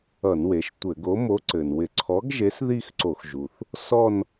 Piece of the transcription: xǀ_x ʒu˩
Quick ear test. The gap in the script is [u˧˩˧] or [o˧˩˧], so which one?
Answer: o˧˩˧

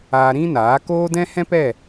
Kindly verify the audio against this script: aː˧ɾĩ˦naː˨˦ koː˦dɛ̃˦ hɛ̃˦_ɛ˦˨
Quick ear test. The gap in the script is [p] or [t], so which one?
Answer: p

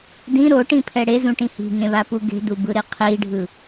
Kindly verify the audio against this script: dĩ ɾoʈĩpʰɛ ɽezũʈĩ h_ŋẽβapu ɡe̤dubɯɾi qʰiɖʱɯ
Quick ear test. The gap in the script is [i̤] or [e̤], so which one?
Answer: i̤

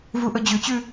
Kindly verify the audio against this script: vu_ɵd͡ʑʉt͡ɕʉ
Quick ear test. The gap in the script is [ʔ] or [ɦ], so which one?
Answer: ʔ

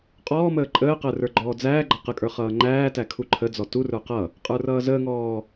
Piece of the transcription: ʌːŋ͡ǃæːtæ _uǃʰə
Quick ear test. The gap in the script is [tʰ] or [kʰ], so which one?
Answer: kʰ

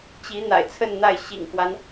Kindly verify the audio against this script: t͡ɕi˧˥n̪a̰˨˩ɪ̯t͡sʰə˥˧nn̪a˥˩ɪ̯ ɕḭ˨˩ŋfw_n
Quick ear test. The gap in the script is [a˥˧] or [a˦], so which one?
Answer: a˦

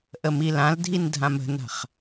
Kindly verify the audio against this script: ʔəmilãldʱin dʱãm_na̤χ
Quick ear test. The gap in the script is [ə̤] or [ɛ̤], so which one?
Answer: ə̤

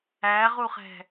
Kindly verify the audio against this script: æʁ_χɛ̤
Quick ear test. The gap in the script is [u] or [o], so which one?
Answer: u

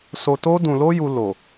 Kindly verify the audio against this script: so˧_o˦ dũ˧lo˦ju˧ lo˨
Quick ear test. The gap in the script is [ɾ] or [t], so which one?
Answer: t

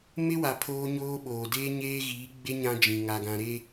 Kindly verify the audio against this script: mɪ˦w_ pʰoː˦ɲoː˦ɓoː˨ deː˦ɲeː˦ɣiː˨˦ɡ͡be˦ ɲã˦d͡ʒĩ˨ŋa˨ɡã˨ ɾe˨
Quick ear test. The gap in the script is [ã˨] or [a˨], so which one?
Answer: a˨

